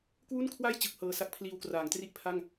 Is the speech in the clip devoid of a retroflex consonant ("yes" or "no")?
yes